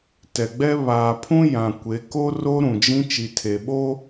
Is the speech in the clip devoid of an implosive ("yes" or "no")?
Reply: no